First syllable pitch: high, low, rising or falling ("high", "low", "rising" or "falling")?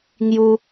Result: high